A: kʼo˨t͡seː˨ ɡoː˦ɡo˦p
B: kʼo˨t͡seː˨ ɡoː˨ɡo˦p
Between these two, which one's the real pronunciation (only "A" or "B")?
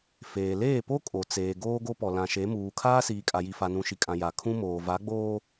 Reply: A